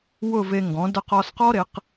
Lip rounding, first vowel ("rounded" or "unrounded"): rounded